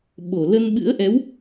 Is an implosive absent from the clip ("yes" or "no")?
no